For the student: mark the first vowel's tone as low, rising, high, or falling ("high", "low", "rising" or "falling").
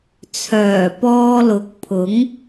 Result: low